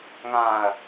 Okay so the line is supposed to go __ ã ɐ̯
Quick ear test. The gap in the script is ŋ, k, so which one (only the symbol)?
ŋ